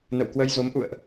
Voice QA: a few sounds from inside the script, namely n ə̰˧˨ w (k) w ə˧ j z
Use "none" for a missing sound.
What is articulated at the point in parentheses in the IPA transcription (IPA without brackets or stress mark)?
k